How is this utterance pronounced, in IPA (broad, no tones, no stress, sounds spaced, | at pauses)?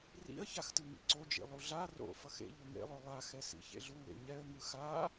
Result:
r ḭ ə̯ ç a x t ɯ ŋ ḭ ǀ o d͡ʒ ḭ lˠ u ɮ a r o̰ f ʌ x ḛ ʎ u ŋ ḛ lˠ o lˠ a x ɛ s ḭ ç ḛ ɮ u w ḛ ɲ ɛ ə̯ ŋ ɯ x a